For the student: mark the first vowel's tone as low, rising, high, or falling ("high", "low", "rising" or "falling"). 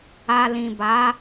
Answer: low